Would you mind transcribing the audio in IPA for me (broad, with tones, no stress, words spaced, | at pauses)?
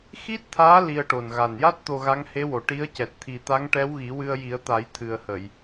xi˦˥t̚t̪ʰaː˧˥ li˧ə̯ʈo˨˩n ɣa˨˩nja˦˥t̚ t̪o˧ɣa˧˥ŋhe˧˥wo˨˩ ʈi˧˥ə̯cɛ˨˩t̚ t̪ʰi˧ t̪a˧˥ŋʈɛ˧˥wɣi˨˩˦ wɨ˧ə̯ji˨˩˦ə̯t̪a˨˩˦j t̪ʰɨ˨˩ə̯hə˨˩˨j